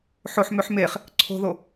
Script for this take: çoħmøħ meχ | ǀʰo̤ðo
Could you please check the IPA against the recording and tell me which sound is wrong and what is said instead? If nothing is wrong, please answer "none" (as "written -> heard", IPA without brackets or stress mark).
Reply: ç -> ħ